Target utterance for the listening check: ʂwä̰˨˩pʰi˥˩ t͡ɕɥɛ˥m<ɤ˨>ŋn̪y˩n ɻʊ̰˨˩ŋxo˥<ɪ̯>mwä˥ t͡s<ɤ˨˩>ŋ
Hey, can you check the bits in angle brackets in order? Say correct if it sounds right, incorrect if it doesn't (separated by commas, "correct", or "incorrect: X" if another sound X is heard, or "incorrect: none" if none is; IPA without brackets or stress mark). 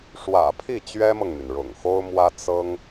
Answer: correct, incorrect: ʊ̯, incorrect: ɤ˥